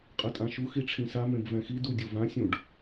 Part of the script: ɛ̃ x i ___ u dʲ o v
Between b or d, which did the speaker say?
d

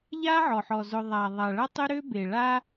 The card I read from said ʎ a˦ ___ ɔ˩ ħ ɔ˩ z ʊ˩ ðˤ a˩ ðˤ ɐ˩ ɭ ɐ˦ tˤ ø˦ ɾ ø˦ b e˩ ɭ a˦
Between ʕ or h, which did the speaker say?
ʕ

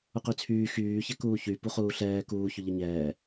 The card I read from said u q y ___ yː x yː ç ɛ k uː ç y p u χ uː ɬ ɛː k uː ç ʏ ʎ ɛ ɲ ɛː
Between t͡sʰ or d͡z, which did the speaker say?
t͡sʰ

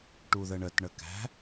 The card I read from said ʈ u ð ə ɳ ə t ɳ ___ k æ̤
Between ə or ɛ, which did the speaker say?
ə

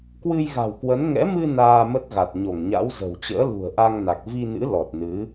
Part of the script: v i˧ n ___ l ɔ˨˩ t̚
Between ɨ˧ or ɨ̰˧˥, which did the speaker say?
ɨ̰˧˥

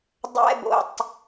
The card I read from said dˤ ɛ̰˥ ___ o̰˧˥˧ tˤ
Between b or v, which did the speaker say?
b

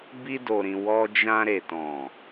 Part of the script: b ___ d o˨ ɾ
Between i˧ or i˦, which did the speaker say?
i˧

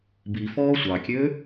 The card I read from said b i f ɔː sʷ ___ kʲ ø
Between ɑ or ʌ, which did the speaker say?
ɑ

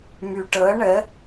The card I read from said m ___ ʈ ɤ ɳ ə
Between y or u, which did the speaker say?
y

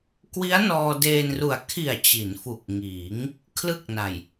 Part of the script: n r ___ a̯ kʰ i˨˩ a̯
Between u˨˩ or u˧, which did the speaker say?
u˨˩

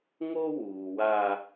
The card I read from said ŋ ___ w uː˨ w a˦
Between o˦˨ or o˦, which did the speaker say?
o˦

